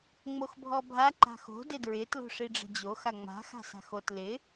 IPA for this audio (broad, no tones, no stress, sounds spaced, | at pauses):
ŋ͡m o x bʱ ɔ bʱ a ǃ a̤ x o̤ d ɪ d ɹ ɪ t l o̤ ʂ i ɖ͡ʐ ə̤ d͡ʑ o x a ŋ͡m a̤ x a̤ s a̤ x o t l ɪ